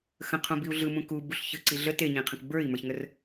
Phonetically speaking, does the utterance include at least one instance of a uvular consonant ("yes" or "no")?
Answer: yes